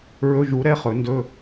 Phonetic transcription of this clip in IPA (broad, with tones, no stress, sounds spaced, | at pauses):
ɹ ɵ˧˥˧ ʒ u˨˩˦ ɾ ɛ˧˥ χ ɵ˨˩˦ n d ɵ˧˥˧